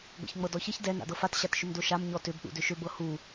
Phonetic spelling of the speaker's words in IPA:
ɡʷ a̰ ç ŋ͡m ɤ d ɔ ç e ç d ɛ n a̰ d ɤ f a t ɕ a t ʃ ʏ m d o ʃ a m ɲ ɔ t ʏ b ɗ ṵ d ʏ ʃ ʏ b ɤ h u

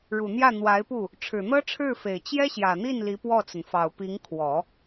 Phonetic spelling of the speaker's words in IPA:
ɻ u˨˩ n̪ j ä˥˩ n̪ w a˧˥ ɪ̯ p u˥˩ | ʈ͡ʂʰ ɻ̩˨˩ n̪ ɤ˥ ʈ͡ʂʰ ɻ̩˥˩ f e˨˩ ɪ̯ t͡ɕ j ɛ˥ ɕ j ä˨˩ n̪ i˥˩ n l i˧˥ p w ɔ˥˩ t͡s ə˩ n f ɑ˨˩ ʊ̯ p i˧˥ ŋ kʰ w ɔ˨˩˦

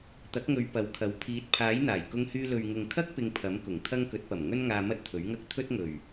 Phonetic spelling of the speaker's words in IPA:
t̪ ɐ˨˥ k̚ ŋ ɵ˨˧ ɥ p ɐ˨˧ w kʰ ɐ˨˥ w pʰ iː˨˥ t̚ pʰ aː˨˥ j n̪ aː˨˩ j k ʊ˧ ŋ h yː˧ l ɵ˨ ɥ ŋ ʊ˨ ŋ kʰ ɐ˥ k̚ p ɪ˧ ŋ pʰ ɐ˨˥ m k ʊ˨˩ ŋ t̪ʰ ɐ˥ ŋ k ɵ˨˥ t̚ p ɐ˨˩ m ŋ ɵ˥ n ŋ aː˧ m ɐ˥ t̚ t̪ʰ ɵ˨˥ ɥ ŋ ɐ˥ k̚ t̪ʰ ɵ˥ t̚ ŋ ɵ˨˩ ɥ

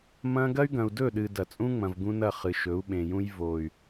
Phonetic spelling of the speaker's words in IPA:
m ɐ̃˦ ɡ ɐ˦ y̯ ɡ ɐ̃˨ u̯ d ɵ˦˨ ɗ ɨ˨ d ɐ˨ t͡sʼ ũ˦ ŋ͡m ɐ̃˨ v ɡ ũ˦ n ɐ˦˨ χ ɨ˨ ʃ ɵ˨˦ u̯ ɓ ẽ˨ j ũ˦ j v o˨ y̯

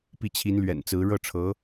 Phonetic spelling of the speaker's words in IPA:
p i˥˩ t͡ɕʰ i˧˥ n l ɥ ɛ̰˨˩ n t͡s ɹ̩˧˥ ɻ ɤ˥˩ ʈ͡ʂʰ ɤ˧˥

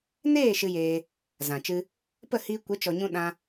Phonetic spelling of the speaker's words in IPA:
n eː˦˨ ʃ ɨ˧ j eː˧ | z ã˨ t͡ʃ ɨ˧ | p ə˦˨ h iː˧ kʷ ə˨˦ t͡ʃ ɔ˨ ɲ ũ˧ ɗ ã˧

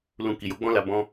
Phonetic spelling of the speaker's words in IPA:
l ũ˧ k i˨ j o˨˦ ɡ͡b ɔ̃˦ l a˧ b ɔ̃˧

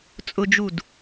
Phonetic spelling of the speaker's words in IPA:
t͡sʼ ʊ d͡ʒ u d

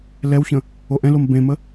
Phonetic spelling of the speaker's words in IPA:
l ɛ w ç ə̃ | o ʔ ɛ̃ l o m b ẽ m ə

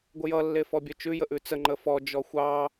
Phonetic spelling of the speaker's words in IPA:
ɡʷ ə j ʌ lː e f ɔ bʲ œ t͡ʃ ʉ j ə ʔ ʉ t͡s ə ŋ͡ǃ ə f ɔ d͡ʒ ɔ xʷ ɑ

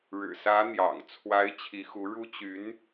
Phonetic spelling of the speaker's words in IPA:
ɻ ɻ̩˨˩ s ä˧˥ n̪ j ɑ̰˨˩ ŋ t͡sʰ w a˧˥ ɪ̯ t͡ɕʰ i˧˥ x u˧˥ ɻ u˥ t͡ɕ y˧˥ n

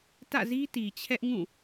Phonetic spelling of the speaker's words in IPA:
t ä̰˦˨ z i˦ t i˨ t͡ɕʰ ɛ˦ ʔ ŋ ũ˦˨

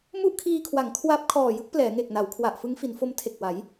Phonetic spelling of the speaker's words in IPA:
m u˥˩ ʔ kʰ iː˧ kʰ w a˩˦ ŋ kʰ w a˦˥ p̚ kʰ ɔː˨˩ j ɯ˦˥ k̚ p l ɛː˩˦ ŋ e˨˩ k̚ n a˩˦ w kʰ w a˨˩ ʔ f ɯ˦˥ ŋ f i˩˦ n f o˦˥ m tʰ e˨˩ k̚ w a˩˦ j

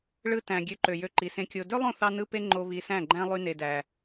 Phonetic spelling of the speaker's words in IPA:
ɭ ɯ˧ t æ̃˨ ɡʲ ø˨˦ ǃ ø˨ j ø˧ ǃ i˨ s ẽ˧ kʲ o˨ d ø˦ lˠ õ˦˨ θ ɑ˦ n ɯ˦ p e˦ ŋ͡ǃ o˧ β i˧ s æ̃˦˨ ɡ͡ǃ æ̃˦ lˠ y˧ n e˨ d æ˨

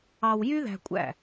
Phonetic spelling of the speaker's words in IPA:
ɑ˧ w j y˥ ð æ̤˧ kʷʼ æ̰˥˩

